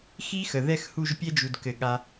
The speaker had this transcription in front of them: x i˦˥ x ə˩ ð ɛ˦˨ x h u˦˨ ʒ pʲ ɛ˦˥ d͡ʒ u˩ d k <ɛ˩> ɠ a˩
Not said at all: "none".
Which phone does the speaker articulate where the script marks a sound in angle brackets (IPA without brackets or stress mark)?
ɘ˩